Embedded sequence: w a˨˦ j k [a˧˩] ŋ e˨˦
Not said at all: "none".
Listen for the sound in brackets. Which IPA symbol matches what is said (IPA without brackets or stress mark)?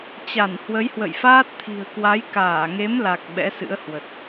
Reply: aː˧˩